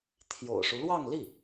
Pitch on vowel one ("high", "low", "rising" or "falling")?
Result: low